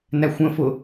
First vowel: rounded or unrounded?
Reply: unrounded